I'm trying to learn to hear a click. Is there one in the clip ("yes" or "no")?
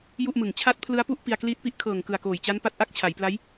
no